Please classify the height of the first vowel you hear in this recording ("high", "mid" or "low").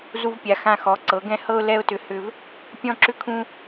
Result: high